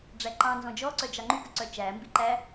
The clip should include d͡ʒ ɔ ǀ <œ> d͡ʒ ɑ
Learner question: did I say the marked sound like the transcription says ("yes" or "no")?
yes